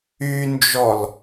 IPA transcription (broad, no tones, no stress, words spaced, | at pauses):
ynd͡ʒɔl